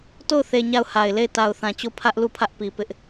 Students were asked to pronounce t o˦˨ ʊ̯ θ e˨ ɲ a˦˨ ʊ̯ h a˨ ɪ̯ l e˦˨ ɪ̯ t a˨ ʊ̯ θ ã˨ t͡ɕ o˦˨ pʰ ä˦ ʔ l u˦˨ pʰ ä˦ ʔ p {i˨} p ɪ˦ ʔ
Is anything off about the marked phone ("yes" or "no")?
no